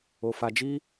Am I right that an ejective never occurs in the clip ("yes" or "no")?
yes